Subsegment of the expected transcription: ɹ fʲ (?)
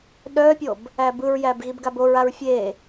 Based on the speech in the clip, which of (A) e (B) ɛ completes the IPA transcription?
A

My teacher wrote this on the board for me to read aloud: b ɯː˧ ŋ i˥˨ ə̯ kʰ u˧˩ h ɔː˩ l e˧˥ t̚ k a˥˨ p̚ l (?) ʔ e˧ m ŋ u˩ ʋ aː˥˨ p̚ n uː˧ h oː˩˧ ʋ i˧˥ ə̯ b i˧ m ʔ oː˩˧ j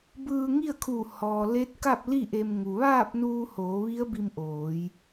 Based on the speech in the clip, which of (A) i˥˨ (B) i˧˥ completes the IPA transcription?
A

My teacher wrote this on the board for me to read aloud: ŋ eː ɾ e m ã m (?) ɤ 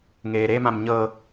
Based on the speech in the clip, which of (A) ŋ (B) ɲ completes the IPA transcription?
B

